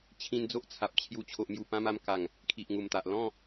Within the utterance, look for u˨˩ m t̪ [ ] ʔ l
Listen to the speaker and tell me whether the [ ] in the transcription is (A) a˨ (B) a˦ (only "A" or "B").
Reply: A